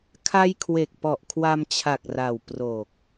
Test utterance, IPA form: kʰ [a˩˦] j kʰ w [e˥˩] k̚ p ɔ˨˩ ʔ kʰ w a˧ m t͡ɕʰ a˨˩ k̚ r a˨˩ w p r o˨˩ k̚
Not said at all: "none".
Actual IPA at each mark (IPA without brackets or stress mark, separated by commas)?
a˧, e˨˩